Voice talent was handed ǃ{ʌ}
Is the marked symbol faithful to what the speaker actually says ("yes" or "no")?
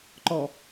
no